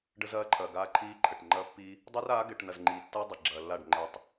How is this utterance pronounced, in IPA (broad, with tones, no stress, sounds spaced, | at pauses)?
ɖ ə˦ z ɐː˦ ǃʰ ɐː˨ ɡ aː˦ ǃʰ iː˦ ǃʰ ə˨ ʈ ŋ͡ǃ ɐː˦ pː i˦ | dˤ ɛ˦ r aː˨˦ ɡ ɛ˨ ʈ n ɐ˨ z ŋ͡ǃ iː˨ tː ɐː˦ dˤ i˨ ɡ͡ǁ ɐː˨ lː a˦˨ ɖ ŋ͡ǃ ɛ˨ tˤ